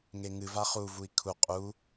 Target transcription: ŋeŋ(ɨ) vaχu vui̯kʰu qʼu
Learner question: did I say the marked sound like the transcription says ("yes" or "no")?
yes